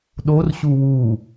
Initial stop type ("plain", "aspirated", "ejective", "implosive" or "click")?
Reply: implosive